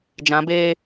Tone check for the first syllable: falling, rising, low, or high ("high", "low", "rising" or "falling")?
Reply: rising